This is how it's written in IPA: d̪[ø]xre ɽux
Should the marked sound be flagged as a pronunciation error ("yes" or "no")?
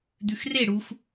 yes